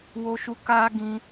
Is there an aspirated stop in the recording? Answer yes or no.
no